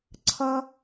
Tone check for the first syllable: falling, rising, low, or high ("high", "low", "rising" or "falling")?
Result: high